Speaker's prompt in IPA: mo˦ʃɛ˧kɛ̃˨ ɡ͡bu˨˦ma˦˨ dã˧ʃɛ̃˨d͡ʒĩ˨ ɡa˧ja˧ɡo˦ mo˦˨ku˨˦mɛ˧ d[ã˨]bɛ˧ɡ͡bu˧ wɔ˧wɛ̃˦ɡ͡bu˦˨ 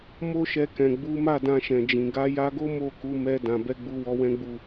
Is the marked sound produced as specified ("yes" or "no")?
yes